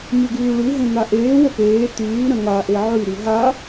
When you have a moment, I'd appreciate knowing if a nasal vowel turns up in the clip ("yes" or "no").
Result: yes